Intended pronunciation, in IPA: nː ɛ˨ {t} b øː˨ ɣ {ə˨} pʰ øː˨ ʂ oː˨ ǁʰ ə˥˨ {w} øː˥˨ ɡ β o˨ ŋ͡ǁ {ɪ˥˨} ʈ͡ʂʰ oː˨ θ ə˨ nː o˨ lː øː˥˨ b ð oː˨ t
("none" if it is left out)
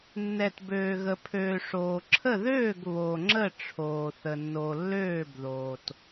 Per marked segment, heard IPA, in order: t, ə˨, ð, ə˥˨

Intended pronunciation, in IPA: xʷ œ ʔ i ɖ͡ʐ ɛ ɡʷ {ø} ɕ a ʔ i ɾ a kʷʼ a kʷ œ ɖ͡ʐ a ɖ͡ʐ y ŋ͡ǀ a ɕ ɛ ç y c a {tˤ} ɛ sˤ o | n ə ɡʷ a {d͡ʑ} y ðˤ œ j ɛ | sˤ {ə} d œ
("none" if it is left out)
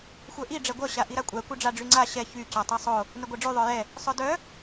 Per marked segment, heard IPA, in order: œ, tˤ, ɖ͡ʐ, œ

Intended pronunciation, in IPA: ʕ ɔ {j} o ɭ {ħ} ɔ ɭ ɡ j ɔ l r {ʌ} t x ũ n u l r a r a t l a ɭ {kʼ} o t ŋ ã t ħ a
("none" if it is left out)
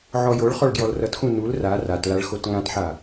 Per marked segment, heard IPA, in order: j, χ, ʌ, x

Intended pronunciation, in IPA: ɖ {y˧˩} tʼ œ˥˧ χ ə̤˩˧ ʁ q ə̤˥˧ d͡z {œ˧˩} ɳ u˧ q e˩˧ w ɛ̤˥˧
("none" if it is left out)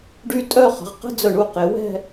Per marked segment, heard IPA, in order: y˧, œ˧˩

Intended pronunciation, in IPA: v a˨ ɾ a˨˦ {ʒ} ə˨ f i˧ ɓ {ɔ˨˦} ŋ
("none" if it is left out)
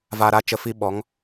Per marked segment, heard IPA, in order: t͡ʃ, ɔ˨˦

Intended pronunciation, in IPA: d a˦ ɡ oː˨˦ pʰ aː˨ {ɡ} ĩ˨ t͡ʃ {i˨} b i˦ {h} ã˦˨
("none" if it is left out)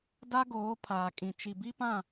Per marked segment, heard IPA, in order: kʼ, i˨, p

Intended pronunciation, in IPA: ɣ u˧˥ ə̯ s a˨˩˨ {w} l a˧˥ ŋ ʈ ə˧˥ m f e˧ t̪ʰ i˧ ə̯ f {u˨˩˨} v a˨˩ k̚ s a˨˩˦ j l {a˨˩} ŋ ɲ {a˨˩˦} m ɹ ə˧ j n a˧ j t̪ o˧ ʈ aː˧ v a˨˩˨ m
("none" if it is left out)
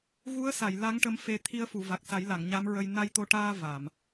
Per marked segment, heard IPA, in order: j, u˨˩˨, a˨˩˨, a˧˥

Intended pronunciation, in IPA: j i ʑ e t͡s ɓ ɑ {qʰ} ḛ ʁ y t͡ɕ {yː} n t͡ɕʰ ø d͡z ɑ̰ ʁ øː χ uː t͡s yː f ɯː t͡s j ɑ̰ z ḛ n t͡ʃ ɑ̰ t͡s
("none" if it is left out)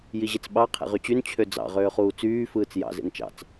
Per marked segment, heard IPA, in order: qʰ, y

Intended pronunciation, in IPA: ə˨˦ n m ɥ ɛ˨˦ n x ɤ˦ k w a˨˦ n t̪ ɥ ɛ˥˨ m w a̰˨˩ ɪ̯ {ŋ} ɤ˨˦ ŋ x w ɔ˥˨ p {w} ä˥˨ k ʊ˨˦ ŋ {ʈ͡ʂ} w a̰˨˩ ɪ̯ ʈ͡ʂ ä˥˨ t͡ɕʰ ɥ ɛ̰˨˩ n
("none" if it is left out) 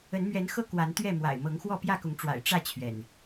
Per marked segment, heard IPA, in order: m, j, ʈ͡ʂ

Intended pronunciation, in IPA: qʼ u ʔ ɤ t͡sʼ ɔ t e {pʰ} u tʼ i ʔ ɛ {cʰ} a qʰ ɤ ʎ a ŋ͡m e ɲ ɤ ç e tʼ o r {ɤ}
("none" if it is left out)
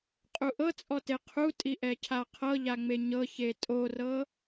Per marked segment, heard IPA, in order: qʰ, cʰ, ɤ

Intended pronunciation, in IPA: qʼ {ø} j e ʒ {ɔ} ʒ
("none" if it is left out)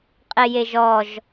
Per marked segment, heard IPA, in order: e, ɔ

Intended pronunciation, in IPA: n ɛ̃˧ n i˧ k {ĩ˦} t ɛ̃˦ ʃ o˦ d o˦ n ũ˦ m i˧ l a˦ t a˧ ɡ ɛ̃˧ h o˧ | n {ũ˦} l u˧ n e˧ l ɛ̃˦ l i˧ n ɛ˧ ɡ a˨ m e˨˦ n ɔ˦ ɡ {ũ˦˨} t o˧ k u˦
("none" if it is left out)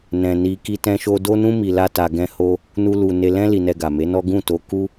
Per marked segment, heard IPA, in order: i˦, u˦, ũ˦˨

